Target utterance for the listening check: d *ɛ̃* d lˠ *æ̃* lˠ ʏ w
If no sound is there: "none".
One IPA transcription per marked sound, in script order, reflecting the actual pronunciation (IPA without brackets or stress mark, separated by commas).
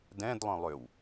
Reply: ɛ̃, œ̃